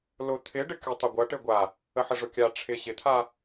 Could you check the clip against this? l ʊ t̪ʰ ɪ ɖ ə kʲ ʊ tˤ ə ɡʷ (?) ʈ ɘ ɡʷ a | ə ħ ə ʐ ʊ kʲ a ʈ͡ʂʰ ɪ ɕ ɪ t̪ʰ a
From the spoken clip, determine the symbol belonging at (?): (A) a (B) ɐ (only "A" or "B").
B